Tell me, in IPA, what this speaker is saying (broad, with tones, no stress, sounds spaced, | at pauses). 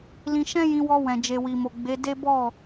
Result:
l ĩ˧ ʃ ɛ̃˦ j ĩ˧ w ɔ˧ w ɛ̃˨ d͡ʒ e˨ w i˨ m o˨ ɡ͡b e˨˦ d e˦ b ɔ˦˨